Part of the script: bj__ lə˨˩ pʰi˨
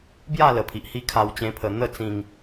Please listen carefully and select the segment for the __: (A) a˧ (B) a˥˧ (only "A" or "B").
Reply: B